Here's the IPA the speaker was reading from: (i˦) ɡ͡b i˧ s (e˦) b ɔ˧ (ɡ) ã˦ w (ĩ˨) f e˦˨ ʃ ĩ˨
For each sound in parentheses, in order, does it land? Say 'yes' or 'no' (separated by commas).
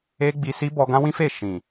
no, no, yes, no